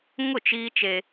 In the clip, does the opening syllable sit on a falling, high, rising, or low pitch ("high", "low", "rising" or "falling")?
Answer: falling